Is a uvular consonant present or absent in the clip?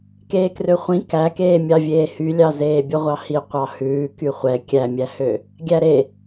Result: present